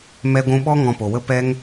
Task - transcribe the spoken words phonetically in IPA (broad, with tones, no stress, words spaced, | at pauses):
mɛ˧ɡʷũ˧ɓɔ˦ ŋɔ̃˧po˨wə˦ pɛ˦ŋ